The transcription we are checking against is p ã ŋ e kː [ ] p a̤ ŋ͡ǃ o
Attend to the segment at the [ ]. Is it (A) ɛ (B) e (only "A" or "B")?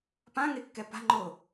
A